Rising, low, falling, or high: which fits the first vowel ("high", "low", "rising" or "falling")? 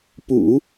low